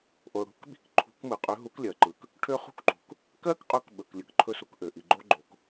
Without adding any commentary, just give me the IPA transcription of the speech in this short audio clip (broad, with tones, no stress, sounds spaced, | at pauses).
ʔ o˩ ɽ ṳ˦˥ k ɓ i̤˦˥ k ǃʰ ṳ˨˥ k m ɯ˩ qʼ ø˨˥ ɦ u˨˥ k lʲ ɜ˩ ǃ ɯ˩ k | ʈʰ ø˦˥ χ ṳ˦˥ k ǃ ṳ˩ k | k ɜ˦˥ k qʼ ɵ˨˥ k ɓ ɵ˩ k lʲ ɯ˩ k ǃʰ ɵ˦˥ s u˨˥ k ʔ ø˩ ʔ i˩ ɡ͡ǃ o˦˥ ɡ͡ǃ o˩ k